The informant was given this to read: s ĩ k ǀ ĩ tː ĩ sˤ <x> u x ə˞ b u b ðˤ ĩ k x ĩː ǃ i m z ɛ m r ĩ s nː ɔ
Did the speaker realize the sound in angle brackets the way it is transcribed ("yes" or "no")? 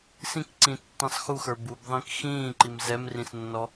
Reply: yes